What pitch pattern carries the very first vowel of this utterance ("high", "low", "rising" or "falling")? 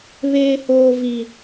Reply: high